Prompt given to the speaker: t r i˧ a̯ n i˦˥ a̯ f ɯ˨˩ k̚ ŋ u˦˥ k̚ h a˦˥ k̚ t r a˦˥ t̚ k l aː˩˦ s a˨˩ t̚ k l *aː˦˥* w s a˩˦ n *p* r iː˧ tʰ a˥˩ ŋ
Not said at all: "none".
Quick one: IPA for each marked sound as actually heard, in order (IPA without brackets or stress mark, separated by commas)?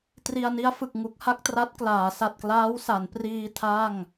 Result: aː˦˥, p